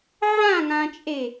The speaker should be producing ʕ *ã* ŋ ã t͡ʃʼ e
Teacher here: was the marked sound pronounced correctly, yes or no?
yes